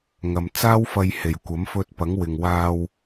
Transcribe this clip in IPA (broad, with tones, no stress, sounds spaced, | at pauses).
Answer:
ŋ ɐ˨ m t͡s aː˥ w f ɐ˧ j h e˨˩ j kʷ ɐ˨˥ m f ɵ˧ t̚ p ɐ˨˥ ŋ w ɪ˨ ŋ w aː˧ w